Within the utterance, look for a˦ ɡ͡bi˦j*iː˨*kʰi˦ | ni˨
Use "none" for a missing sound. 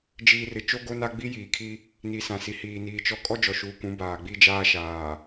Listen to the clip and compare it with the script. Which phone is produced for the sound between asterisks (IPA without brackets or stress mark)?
iː˨